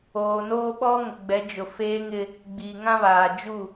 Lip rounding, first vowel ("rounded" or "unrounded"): rounded